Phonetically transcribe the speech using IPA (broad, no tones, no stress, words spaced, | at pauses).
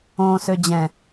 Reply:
õ sød͡ʑɛ̃